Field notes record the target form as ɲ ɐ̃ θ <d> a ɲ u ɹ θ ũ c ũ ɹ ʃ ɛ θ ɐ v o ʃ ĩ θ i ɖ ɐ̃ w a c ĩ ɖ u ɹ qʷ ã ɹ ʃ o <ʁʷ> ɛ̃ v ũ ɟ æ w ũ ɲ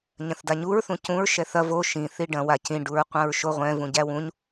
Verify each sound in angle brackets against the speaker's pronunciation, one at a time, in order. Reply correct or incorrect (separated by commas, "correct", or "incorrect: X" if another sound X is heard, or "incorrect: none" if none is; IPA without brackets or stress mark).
correct, correct